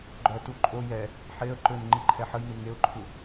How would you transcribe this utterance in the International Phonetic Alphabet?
ɡ͡ǃ œ t u ǃʼ o j ɛ | ħ e ə̯ ǃ ø n ŋ͡ǃ i ǃʰ ɛ ħ ə j n u ŋ e ʊ̯ ǃʰ u

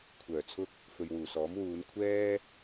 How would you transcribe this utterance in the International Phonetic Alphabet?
kʷʰ œː˨˩ t͡sʰ ʊ˥ k̚ | f ɵ˨ ɥ w uː˨˩ s ɔː˨˥ m w uː˨˧ n kʷʰ ɛː˥

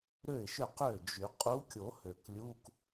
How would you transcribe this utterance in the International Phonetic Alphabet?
ɾ ø˥˩ ɪ̯ ʃ ø˥˩ q ø˥˩ d͡ʒ y˨˩˦ qʼ u˧˥ kʲ o˨˩˦ h ø˨˩ k lʲ u˧˥˧ k

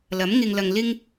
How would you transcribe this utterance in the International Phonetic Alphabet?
l ɐ˨˥ m ŋ ɪ˧ ŋ l ɐ˧ ŋ l ɪ˥ ŋ

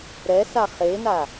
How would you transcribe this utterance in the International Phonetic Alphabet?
ɾ ɛ s a χ e n a

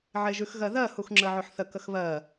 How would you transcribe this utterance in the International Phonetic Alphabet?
ʕ e ʒ ʉ x ɣ ɜ ð ɜ h u x ŋ͡ǁ ə ʕ ɵ ħ θ ə k ə x β ɜ

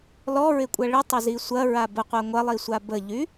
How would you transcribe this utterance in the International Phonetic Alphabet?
l ɔ ɹ ɪ kʷʼ ɐ ɭ ɪ tˤ ɪ z i sʷ ɐ ɹ a b ə qʷ a ŋʷ ɐ lˠ i sʷ a b ə ʎ y

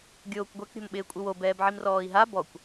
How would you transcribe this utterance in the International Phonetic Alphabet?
ɡʲ oː kʷ ɡʷ ɛ k ɾʲ o̤ m ɓ ɪː kʷʼ ɪ w o b ɛː b ʕ i m r ɔː i̯ ɦ a b ɔ kʷ

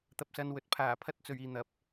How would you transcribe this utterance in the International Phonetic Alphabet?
t̪ ɐ˧ p̚ s ɐ˧ n w ɵ˨ t̚ pʰ aː˨˩ pʰ ɐ˨˥ t̚ t͡s ɵ˨ ɥ iː˨ n̪ ɐ˨˥ p̚

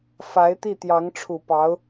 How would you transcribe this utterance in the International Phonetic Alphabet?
f a˧˥ ɪ̯ t̪ i˥˩ t̪ j ɑ˧˥ ŋ ʈ͡ʂʰ u˨˩ p ɑ˧˥ ʊ̯

